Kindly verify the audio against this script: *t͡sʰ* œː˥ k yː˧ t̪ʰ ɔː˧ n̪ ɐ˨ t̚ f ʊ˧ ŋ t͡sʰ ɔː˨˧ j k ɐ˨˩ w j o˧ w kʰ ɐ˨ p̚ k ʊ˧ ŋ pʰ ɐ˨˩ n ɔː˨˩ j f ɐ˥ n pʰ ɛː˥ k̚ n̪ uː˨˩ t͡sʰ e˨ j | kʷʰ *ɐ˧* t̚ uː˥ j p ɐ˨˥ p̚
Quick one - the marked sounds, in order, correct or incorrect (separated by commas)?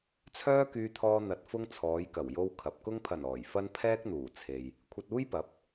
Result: correct, correct